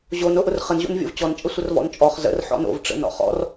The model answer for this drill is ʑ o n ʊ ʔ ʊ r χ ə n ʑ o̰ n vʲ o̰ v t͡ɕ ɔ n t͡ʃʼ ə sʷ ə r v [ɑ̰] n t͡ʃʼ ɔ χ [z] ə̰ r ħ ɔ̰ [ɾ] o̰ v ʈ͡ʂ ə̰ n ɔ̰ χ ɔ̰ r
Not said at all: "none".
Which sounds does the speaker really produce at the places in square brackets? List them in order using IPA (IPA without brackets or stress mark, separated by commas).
ɔ̰, z, n